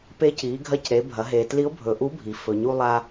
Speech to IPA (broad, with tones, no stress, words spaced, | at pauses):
pe˧˥ ci˩˧ ɡʱɐ˧˥cɾe˩˧bʱɐ˩˧ ɦe˩tli˧˥ʊ̯bʱɵ˩ ʔu˧˥bʱi˩ fɵ˩ ɲu˧lˠa˧